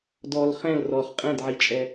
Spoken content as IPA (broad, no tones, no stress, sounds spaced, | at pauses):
d ɔ l χ ɛ̃ l r ɔ χ qʼ ɛ̃ d ʕ i t͡ʃʼ ɛ